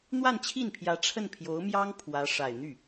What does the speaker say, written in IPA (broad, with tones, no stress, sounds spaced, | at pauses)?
n̪ w a˥˧ n t͡ɕʰ i˥˩ n pʰ j ä˧˥ ʈ͡ʂʰ ə˥˩ n pʰ j o˧˥ ʊ̯ m j ɑ˥ ŋ pʰ w ä˧˥ ʂ a˨˩ ɪ̯ n̪ y˥˩